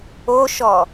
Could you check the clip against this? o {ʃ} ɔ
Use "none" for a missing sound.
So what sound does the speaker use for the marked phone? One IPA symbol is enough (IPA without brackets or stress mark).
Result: ʃ